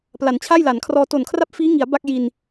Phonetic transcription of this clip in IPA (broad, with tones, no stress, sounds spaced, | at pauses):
p l a˩˦ n t͡ɕʰ a˥˩ j l a˩˦ n kʰ r ɔː˧ t o˨˩ n kʰ r a˥˩ p̚ f iː˦˥ ŋ i˩˦ a̯ b a˥˩ k̚ j i˧ n